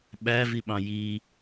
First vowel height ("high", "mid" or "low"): low